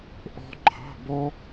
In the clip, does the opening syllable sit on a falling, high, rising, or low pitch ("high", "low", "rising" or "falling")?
high